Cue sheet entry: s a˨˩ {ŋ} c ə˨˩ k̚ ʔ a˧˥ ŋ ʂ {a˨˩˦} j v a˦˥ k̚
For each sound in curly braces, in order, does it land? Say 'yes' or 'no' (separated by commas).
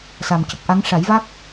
no, yes